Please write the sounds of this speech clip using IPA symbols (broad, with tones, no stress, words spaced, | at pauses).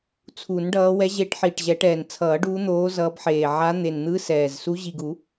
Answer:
t͡sʰu˨˩˦nɖʌː˨˦ wɛ˨˦ʑe˨˦ʈ ħiː˨˩ʈʑɛ˨˩˦ʈɛː˨˩n t͡sʰʌː˨˩˦ɖuː˨˦n̪oː˨˦ zʌː˨˦bħeː˨˩ ʕa˨˦ n̪e˨˩nn̪ɯ˨˦ sɛː˨˩z su˨˦ʑi˨˩ɡu˨˩˦